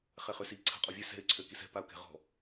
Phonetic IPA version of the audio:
χ ɛ χ ø s i ǀʰ a̤ qʼ ɔ vʲ ø s ɛ̤ ɪ̯ ǀʰ ø k i s ɛ̤ p a ʊ̯ k ɛ̤ ʁ ɔ̤

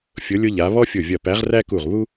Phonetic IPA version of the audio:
fʲ ʊ˨˦ lʲ ʊ˦ ʎ a˨˦ β ɔ˦ fʲ ʊ˧˩ vʲ ɐ˧˩ p æ˨˦ ʁ r æ˦ k u˧˩ ʁ β u˦

